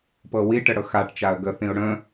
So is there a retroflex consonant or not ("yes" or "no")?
yes